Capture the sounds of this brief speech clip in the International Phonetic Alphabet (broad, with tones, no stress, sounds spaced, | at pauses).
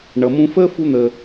ɳ ʌ˩ m ũ˧ f əː˥ f u˧ n̪ ə˩